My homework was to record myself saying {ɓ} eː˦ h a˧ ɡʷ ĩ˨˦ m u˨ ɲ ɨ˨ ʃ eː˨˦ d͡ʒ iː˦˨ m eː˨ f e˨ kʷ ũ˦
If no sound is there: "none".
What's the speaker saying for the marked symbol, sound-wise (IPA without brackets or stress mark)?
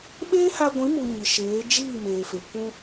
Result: ɓ